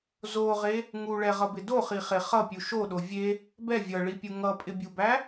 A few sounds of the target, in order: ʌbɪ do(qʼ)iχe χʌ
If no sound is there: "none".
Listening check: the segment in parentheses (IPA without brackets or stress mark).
χ